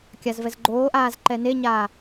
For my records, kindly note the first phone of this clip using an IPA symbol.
kʲ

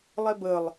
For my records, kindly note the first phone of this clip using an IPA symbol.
lˠ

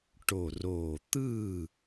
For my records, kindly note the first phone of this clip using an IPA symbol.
ʈ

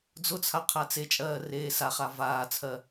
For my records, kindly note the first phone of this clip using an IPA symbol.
d͡z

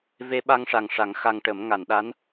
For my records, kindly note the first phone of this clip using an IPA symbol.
v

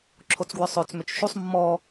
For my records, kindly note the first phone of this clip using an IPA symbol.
ǁʰ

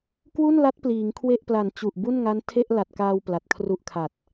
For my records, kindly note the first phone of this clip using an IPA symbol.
k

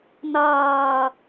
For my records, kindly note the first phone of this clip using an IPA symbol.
n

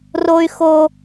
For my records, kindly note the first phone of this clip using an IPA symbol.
r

